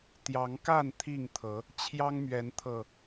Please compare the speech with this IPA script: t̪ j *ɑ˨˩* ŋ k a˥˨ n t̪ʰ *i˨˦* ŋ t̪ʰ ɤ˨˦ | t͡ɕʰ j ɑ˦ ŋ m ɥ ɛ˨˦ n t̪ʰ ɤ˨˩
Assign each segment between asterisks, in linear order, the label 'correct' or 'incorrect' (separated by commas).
incorrect, incorrect